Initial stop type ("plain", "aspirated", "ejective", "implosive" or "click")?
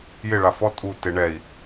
ejective